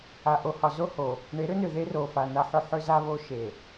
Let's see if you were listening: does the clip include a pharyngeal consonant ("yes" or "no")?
yes